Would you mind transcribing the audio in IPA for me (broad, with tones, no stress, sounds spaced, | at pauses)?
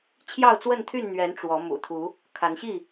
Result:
t͡ɕʰ j ɑ˥˨ ʊ̯ t͡s w ə˥˨ n t̪ʰ y˥˨ n n̪ ɥ ɛ˨˦ n ʈ͡ʂ w ɔ˨˦ m ṵ˨˩ t̪ʰ u˨˦ | kʰ a˨˦ n ɕ i˥˨